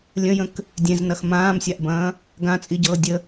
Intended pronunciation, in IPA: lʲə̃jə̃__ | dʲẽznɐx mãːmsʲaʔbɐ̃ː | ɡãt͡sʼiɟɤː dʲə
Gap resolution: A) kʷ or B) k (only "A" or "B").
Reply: B